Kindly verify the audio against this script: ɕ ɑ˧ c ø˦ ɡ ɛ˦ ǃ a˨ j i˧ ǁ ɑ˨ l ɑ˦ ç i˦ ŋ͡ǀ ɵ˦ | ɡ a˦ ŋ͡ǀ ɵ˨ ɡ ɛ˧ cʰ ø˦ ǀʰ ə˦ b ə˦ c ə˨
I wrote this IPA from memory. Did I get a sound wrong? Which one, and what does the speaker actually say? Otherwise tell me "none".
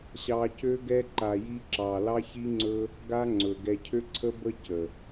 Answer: none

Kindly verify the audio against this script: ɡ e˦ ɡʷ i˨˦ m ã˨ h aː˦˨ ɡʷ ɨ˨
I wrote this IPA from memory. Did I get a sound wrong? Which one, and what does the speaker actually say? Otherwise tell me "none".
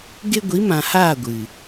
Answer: none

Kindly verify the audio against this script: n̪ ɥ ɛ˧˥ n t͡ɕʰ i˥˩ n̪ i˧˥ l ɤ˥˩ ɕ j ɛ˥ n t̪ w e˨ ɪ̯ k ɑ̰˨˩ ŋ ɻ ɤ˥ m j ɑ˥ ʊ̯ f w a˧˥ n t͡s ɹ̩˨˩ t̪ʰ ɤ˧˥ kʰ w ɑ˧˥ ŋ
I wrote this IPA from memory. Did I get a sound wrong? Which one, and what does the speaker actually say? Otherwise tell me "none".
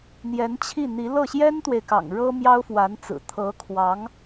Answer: ɥ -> j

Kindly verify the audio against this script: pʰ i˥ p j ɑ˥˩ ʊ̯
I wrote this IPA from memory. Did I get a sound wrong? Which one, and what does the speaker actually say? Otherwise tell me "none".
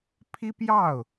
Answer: none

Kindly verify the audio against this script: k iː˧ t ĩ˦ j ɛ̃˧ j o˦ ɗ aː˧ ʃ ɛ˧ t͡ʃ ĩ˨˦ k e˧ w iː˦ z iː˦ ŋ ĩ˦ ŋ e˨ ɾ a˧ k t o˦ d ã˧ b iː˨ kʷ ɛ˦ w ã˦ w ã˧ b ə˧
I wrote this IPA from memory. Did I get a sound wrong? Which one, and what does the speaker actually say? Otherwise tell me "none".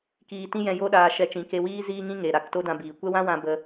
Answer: none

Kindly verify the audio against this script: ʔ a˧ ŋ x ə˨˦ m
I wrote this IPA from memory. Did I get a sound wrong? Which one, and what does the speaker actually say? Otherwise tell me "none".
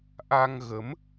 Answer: x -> ɣ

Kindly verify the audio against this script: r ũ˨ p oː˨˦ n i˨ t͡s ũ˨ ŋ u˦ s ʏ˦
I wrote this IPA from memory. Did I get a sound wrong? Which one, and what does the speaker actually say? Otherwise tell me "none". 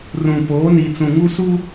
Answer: ʏ˦ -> u˦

